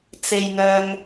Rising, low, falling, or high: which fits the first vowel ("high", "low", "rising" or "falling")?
low